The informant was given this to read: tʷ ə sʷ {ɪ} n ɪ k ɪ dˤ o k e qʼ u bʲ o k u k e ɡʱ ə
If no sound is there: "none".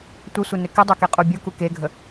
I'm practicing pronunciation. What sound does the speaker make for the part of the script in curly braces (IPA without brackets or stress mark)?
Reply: ɪ